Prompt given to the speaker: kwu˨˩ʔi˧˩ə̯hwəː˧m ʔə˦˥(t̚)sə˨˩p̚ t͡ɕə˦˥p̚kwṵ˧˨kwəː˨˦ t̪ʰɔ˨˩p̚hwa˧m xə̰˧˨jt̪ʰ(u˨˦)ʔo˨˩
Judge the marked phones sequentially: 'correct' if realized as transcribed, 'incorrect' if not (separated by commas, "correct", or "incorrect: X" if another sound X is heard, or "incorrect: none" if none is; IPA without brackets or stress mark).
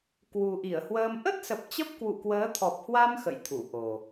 correct, incorrect: u˧˩